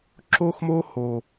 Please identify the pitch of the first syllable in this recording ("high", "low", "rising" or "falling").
high